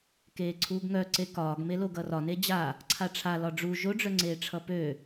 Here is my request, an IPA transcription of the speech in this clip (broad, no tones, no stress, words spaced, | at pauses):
keːǀʰuːɡŋœǀe kɒːɡmelo ɡʌrɒne d͡ʑa | ǀʰaʈ͡ʂʰa lɒɖ͡ʐu ʒoɖ͡ʐœŋ͡ǀeːʈ͡ʂʰʌ pø